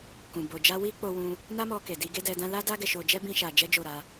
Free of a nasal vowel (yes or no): no